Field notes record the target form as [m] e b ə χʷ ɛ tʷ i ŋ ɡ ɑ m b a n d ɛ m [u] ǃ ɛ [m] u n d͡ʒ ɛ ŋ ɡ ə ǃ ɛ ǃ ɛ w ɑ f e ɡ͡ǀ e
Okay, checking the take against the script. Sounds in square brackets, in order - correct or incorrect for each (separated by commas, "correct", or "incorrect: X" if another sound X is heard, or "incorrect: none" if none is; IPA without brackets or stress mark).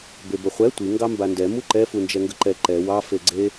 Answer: incorrect: b, correct, incorrect: f